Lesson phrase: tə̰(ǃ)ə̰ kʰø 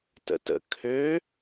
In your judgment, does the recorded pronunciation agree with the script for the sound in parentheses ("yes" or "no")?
no